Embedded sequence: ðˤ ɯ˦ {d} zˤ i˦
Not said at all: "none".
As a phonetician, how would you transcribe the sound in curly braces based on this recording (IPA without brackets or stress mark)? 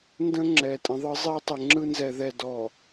none